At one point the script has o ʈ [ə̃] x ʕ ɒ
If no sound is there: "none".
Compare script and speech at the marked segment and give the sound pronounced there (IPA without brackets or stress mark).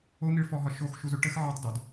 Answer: ə